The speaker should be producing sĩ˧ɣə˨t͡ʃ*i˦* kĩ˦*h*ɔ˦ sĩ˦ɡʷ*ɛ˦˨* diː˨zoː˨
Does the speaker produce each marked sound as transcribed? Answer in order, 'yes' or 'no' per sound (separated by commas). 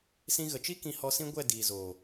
yes, yes, yes